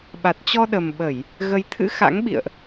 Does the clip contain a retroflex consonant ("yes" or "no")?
no